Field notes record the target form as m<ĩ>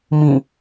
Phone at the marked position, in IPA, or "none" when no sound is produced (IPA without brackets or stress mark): ĩ